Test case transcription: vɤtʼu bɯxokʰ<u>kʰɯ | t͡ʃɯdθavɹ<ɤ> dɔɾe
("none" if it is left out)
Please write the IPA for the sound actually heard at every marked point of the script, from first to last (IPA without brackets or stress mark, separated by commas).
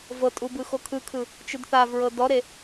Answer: ɯ, ɤ